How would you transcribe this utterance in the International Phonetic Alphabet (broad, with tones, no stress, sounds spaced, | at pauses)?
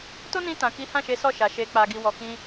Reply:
t o˦ n ĩ˧ t ã˨ k i˨˦ h ã˦˨ ʃ e˨˦ s ɔ˦˨ ʃ a˨ ʃ e˨ k͡p a˨ ɡ i˨ w ɔ˨ k ĩ˧